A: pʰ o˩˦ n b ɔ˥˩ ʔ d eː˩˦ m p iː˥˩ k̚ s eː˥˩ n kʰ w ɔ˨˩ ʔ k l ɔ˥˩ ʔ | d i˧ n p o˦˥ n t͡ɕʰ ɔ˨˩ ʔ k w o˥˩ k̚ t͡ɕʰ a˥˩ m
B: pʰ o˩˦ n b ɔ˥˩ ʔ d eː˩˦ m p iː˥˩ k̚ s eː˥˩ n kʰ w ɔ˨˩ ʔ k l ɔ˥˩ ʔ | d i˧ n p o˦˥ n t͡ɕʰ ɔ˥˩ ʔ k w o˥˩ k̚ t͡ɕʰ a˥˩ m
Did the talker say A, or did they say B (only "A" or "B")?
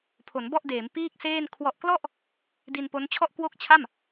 B